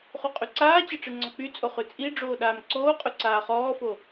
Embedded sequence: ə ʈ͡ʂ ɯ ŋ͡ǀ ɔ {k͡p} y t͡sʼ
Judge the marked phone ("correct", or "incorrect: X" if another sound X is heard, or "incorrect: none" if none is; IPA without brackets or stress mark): correct